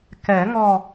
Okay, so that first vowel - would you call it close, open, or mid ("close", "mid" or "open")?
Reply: mid